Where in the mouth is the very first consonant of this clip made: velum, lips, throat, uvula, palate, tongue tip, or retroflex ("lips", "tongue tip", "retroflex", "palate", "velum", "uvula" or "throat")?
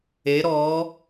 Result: tongue tip